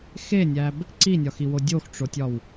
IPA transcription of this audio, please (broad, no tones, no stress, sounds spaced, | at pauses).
x e nʲ æ b | ǀ i nʲ ɒ x i w o dʲ o x ʈ͡ʂ o tʲ ɒ w